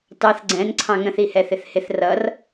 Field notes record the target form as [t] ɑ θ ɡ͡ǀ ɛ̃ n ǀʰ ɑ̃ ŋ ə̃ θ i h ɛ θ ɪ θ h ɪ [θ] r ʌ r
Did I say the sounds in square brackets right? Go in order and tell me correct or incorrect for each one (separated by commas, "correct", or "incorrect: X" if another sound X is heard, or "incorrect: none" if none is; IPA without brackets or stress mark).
correct, correct